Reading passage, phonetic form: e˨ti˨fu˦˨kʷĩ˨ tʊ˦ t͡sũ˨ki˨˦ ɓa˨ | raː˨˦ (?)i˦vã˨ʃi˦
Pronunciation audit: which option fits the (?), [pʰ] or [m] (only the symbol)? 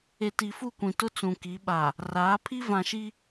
pʰ